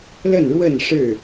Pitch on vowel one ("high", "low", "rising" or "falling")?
falling